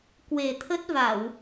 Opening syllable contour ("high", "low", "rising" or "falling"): low